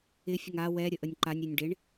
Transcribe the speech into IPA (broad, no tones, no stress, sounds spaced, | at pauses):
ɪ fʲ ə ŋ a w ɛ ɾʲ ə ʔ ə nʲ ǃ a nʲ ɾʲ e nʲ ɖ e ɳ